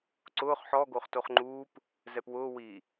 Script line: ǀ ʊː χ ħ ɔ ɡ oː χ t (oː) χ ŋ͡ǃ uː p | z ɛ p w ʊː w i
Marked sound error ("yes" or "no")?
yes